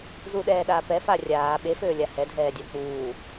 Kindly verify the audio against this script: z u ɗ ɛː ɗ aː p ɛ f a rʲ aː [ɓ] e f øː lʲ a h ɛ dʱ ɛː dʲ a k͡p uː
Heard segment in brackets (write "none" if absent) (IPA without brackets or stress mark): ɓ